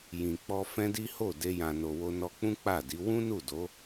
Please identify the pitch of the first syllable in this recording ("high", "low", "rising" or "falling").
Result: low